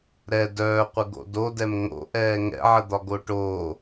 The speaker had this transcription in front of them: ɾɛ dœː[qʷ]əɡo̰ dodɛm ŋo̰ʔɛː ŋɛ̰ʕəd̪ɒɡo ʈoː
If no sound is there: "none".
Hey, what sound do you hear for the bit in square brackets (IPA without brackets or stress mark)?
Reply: qʷ